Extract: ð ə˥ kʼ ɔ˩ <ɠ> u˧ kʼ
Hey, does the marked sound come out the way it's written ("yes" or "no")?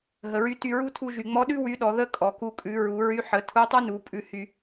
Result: no